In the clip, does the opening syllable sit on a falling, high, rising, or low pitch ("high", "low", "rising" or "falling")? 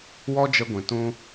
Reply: high